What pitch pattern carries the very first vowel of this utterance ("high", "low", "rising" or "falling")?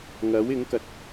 rising